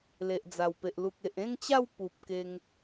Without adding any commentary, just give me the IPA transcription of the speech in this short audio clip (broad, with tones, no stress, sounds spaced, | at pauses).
l e˨ ʔ d͡z a˨˩ w p e˨ ʔ l u˨ k̚ e˨ ʔ ẽ˥˧ ŋ t͡ɕ a˥˧ w p u˨ p̚ k e˧ ŋ